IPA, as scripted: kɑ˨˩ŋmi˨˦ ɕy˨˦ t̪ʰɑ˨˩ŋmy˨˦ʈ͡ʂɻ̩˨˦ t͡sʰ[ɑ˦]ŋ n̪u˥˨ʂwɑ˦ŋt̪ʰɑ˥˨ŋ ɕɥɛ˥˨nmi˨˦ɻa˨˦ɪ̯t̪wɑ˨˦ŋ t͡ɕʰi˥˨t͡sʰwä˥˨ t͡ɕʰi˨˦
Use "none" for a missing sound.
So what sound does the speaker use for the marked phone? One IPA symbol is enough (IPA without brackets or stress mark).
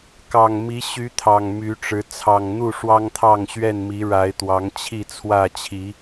ɑ˨˩